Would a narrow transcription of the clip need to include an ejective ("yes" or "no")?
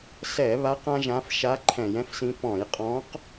yes